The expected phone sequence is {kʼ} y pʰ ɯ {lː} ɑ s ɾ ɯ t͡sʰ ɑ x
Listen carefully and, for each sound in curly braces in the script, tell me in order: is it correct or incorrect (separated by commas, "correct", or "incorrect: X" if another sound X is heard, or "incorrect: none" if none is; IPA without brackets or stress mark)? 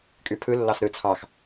correct, correct